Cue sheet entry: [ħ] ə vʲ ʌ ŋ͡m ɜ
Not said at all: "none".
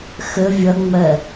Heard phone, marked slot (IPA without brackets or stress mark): x